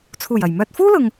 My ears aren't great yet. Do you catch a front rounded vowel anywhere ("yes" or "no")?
yes